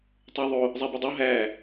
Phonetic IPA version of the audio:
tˤ o ðˤ o | zˤ æ b i dˤ o ɦ æ

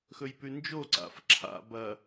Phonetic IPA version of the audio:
x ɵ j p ʉ n d͡ʒ o ǀ a̰ f ǁʰ a̰ b ɐ

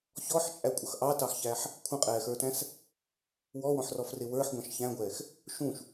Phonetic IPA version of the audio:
ç ɔ ħ t͡ʃʼ æ kʷʼ ʌ x ʔ ɑ t ɑ x ç æ ħ | kʷʰ ə̃ qʼ ɛː x ə˞ t æ̃ s | w ɔ w ɔ̃ ħ r ɔ f r ɪ w ə˞ ħ ɡʷ ɑ̃ ʃ ç æ̃ ɡʷ ɛː x | ʃ ũ ʃ

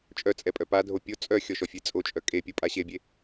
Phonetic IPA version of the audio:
t͡ʃʼ œ t͡sʼ ɛ pʼ œ p a dʱ o pʲ o t͡sʼ œ xʲ ɔ ʃ ɔ fʲ e t͡sʼ o t͡ʃʼ œ kʼ e pʲ o pʼ a ɕ e bʲ e

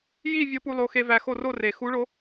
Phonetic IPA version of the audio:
j i˥˧ vʲ o˧˥ p u˧ lˠ o˧ x e˧ v æ˧ x o˥˧ r o˥˧ r e˨˩ x u˧˥ ɭ o˧˥

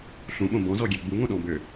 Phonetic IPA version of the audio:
ɬ ũ ɓ õ b ɔ̃ z ɔ ɡʲ ɛ ɡ͡b u ŋ õ ɗ ɔ̃ b ø

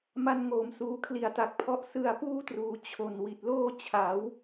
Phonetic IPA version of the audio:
m a˧ n ŋ oː˩˦ m s uː˩˦ kʰ l i˨˩ a̯ t a˨˩ k̚ pʰ ɔ˦˥ ʔ s ɯ˧ a̯ p uː˥˩ t r uː˩˦ t͡ɕʰ o˨˩ n w i˨˩ t̚ l oː˥˩ t͡ɕʰ a˩˦ w

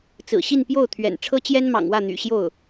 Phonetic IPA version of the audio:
t͡s ɹ̩˨˩ ɕ i˥˧ n p j o˥˩ ʊ̯ t̪ʰ ɥ ɛ̰˨˩ n ʈ͡ʂʰ ɤ˥ t͡ɕ j ɛ˥ n m ɑ̰˨˩ ŋ w ä˥˩ n̪ y̰˨˩ ɕ j o˥˩ ʊ̯

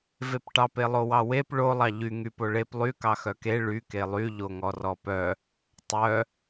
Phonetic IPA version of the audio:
v e p ʈ ɑ p e lˠ o w ɑ w e p ɭ o lˠ ɑ ʎ y ŋ y p o ɭ e p lˠ y k ɑ x œ k e ɭ y k e lˠ y ʎ o ŋ ɔ r ɔ p œ | tˤ œ

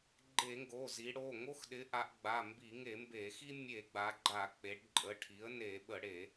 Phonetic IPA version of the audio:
ɡ͡ǃ e˧˩˧ ŋ ɡ o˩˧˩ z i˩˧ ɽ o˩˧˩ ŋ o˦ x ɗ ɪ˩˥ ʔ a˩˧ ʔ ɡ͡b a˩˧˩ m b i˧˩˧ ŋ e˧˩˧ m b e˧˩˧ x i˦ mʲ e˧˩˧ ɡ͡b a˩˧ ɡ͡ǃ a˧˩˧ k͡p e˩˧ ɖ ǃʼ ə˩˧˩ ʈʰ i˩˥ ə̯ n e˧˩˧ ɓ ə˧˩˧ ɽ e˧˩˧

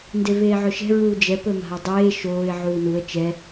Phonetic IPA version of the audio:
n d e v eː ʕ ɵ ʃ ɛ̤ ɹ uː d͡ʒ ɛ p ɵ m a̤ ə̯ dˤ eː ʃ oː ɪ̯ ʕ uː n u ə̯ t͡ʃ ɛ

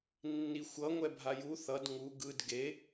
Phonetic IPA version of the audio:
nː i xʷ ʌ ŋʷ ɛ bʱ a j u θ ʌ d ŋ u ɡ ɯ d ɡ e

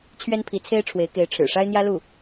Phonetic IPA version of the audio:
t͡ɕʰ ɥ ɛ˥ n pʰ i˧˥ t͡sʰ e˥ ɪ̯ ʈ͡ʂʰ w e˧˥ ɪ̯ k e˧˥ ɪ̯ ʈ͡ʂʰ ɻ̩˨˩ ʂ a˥ ɪ̯ n̪ j ä˥ l u˥˩

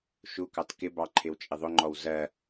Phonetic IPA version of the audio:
ʃ u k ɑ t k ɪ b ɑ ǃʰ ɪ w t͡ʃʼ ɪ ðˤ ʊ ŋ͡ǃ ɔ w z ɜ

